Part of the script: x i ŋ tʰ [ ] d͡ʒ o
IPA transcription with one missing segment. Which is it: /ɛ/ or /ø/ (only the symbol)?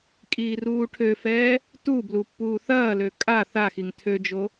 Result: ø